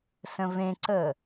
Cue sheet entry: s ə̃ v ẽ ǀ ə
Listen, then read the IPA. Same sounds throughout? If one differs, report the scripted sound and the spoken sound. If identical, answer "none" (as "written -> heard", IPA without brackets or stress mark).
none